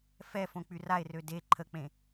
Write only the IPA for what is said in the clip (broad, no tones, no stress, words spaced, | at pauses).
fɛfõ k͡pyrae̯rø de ǃʰək͡pẽ